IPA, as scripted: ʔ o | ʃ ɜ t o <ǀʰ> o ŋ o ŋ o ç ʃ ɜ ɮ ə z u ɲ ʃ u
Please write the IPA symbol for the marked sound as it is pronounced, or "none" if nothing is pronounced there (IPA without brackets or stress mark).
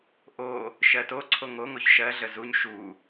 ǀʰ